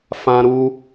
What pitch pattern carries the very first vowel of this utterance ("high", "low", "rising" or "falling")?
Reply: high